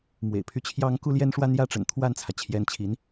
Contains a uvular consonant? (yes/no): no